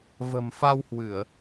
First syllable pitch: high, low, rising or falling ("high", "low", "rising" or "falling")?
low